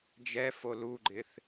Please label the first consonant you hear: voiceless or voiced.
voiced